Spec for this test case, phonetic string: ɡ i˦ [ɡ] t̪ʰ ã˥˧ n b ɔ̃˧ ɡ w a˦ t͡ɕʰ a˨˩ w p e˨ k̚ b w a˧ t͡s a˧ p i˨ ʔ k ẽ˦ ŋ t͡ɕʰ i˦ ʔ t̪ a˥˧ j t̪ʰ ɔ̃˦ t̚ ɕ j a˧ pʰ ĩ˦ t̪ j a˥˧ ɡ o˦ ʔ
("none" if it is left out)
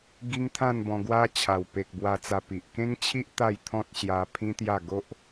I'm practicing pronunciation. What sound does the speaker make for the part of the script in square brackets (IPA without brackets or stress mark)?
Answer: ŋ